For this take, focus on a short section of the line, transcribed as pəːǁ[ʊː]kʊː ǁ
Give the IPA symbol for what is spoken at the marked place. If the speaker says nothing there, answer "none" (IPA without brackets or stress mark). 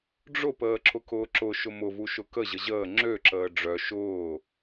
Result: ʊ